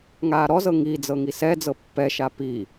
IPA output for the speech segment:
ŋ aː ɾ ɔ z ɤ ŋ i d͡z ɤ ŋ i s ɛ d͡z ɤ pː ɛ ʃ a p i

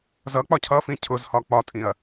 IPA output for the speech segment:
z ʌ k͡p ɒ cʰ ʌ f ĩ cʰ ʊ z h ɒ k͡p ɒ tʼ ĩ ɐ̯

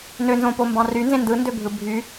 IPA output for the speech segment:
n ø n z õ p o m b ɑ̃ r y n z ẽ n d ɯ n d ø bʱ ɯ bʱ y

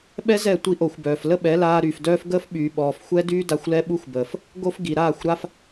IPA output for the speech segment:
ɓ ɛ˦ z ɛ˦˨ tʷ i˧ ʔ o˨ xʷ b œː˨ f l ə˦ ɓ ɛ˨˦ l aː˧ ɾ y˨ f d œː˧ f ɡ əː˦ f ɓ yː˨ ɓ ɔː˨ f xʷ ɛ˦ d yː˦ d a˧ xʷ l ɛ˦ ɓ u˦ xʷ b əː˨ f | ɡ o˦ f ɡ i˨ ɾ aː˦˨ xʷ ɾ a˧ f

